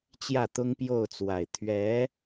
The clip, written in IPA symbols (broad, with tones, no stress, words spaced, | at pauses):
t͡ɕjä˥˩t̪ʊ˥ŋpjo˥˩ʊ̯t͡swa˨˩ɪ̯ t̪ʰɥɛ˧˥